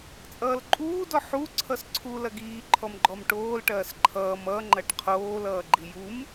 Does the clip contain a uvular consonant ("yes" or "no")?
yes